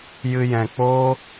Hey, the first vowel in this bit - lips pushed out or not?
no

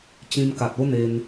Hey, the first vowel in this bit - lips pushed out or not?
no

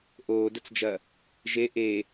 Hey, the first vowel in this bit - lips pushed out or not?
yes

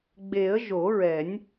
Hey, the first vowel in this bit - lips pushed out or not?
no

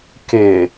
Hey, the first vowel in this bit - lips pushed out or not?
no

